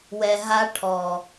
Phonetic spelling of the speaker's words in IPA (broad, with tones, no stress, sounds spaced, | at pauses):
w ɛ˧ ɦ a˦ ʈʰ ɔ˨